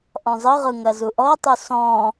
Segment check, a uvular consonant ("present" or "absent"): present